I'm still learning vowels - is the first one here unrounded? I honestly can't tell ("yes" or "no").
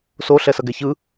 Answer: no